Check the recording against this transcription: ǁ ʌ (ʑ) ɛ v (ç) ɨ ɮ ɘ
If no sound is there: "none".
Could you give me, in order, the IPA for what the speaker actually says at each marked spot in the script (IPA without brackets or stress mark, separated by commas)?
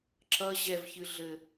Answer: ʑ, ç